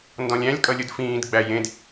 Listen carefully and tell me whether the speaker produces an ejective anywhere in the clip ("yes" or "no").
yes